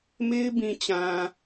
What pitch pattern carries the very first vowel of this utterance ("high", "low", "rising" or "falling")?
high